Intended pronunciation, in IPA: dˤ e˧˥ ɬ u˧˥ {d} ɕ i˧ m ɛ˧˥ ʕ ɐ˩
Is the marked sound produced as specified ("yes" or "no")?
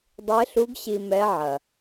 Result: no